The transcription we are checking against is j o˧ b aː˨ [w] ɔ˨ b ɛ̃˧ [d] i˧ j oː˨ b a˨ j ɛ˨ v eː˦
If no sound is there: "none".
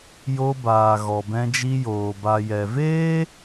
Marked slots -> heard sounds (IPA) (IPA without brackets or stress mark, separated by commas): ɣ, d͡ʒ